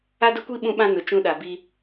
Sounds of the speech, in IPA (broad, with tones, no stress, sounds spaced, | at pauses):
a˦ d ʊ˦ kʷ i˦ ɓ ũ˦ ɓ ã˦ n ʊ˨ t͡ʃ ũ˦ ɗ a˨ b i˦